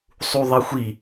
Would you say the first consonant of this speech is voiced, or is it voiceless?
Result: voiceless